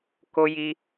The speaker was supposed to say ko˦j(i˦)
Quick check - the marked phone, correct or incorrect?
correct